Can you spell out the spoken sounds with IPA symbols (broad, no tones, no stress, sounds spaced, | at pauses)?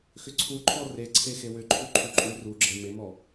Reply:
x ʏ ǀʰ u ǃʰ ɔ r e ǀʰ e x e w ʏ ǃʰ u ǃʰ u ǃʼ u r u ɡ͡ǁ e m e m ɔ